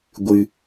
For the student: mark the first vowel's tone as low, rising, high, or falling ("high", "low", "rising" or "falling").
low